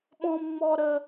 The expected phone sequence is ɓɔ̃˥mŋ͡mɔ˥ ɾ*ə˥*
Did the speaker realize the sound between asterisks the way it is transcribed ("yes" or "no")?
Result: yes